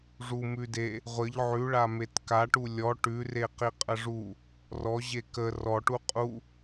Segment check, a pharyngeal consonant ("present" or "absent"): present